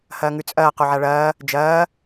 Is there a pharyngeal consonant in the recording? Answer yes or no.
yes